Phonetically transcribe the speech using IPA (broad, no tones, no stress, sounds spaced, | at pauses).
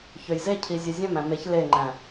ç ø j z e cʰ i zʲ œ zʲ æ̃ m æ̃ m e ç l e ŋ͡ǃ æ̃